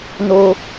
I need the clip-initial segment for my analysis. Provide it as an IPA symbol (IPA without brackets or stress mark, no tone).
n